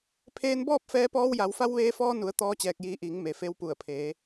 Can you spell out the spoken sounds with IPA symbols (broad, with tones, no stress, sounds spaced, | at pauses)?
pʰ eː˧ n b ɔː˥˨ p̚ f ɛː˧ p ɔː˧ w j a˩˧ w f a˧ w ʋ eː˧ f ɔː˧ n u˩˧ ə̯ t̪ ɔː˧˥ t͡ɕ ɛː˧ k̚ j iː˧ ʔ iː˩˧ ŋ m e˩ f e˧ w p u˧˩ ə̯ pʰ eː˩˧